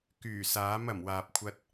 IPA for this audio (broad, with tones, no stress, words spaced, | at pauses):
kyː˨˩saː˨˥m ɐ˨˩mwaː˨p̚kʷʰɐ˧t̚